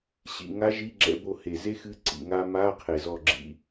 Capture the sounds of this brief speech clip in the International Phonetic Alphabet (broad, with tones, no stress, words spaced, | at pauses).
ɕḭ˨˩ŋa˧˥ ʒi˧˥˧ɡ͡ǁɛ̰˧˥˧bo˦˨he˨˩ ze˥xɨ˧˥ ǀḭ˨˩ŋa˥ ma˧˥˧ qʰe˨˩zɔ˦˨ɡ͡ǁḭ˧˥